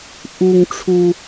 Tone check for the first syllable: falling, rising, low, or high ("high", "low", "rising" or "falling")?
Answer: high